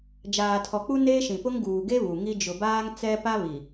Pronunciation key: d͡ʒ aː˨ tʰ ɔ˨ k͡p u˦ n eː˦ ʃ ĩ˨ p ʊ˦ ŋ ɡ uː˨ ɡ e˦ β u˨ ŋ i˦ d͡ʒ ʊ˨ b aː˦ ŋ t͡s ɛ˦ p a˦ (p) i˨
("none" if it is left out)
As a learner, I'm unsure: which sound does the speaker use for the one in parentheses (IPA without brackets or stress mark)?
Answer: β